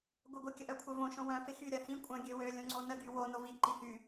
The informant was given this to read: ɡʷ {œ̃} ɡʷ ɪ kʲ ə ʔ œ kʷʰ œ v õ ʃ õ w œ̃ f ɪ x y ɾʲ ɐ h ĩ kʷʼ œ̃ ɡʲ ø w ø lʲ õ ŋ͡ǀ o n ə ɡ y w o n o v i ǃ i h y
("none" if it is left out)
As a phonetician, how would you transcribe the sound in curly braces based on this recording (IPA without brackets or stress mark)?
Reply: œ